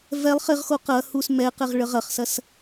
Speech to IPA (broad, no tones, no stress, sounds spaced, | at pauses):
v ɛ lˠ χ ɪ ʁ x o q ɐ h u s m ɛ q ɛ ʁ ɭ ə ʁ ɐ χ s ɐ s